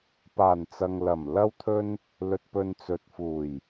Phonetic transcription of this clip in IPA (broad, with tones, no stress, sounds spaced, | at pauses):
p aː˨˩ n t͡s ɐ˨ ŋ l ɐ˨˩ m l ɐ˧ w t̪ʰ ɵ˧ n | l ɵ˨ t̚ p ɵ˨ n t͡s ɵ˨ t̚ f uː˨˩ j